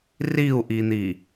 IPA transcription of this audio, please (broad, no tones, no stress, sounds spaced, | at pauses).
r i u̯ ʔ i n̪ i